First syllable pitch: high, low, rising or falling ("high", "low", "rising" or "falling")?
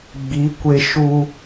rising